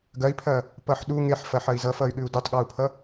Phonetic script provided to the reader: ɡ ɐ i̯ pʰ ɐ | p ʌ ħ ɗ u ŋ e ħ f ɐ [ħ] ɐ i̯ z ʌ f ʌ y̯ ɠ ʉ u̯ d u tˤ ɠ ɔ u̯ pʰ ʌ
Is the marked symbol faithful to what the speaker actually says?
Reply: yes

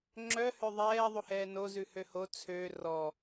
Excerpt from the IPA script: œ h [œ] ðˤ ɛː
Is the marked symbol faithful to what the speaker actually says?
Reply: no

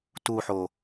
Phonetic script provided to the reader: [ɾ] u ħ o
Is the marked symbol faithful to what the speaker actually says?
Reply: no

